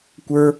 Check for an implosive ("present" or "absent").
absent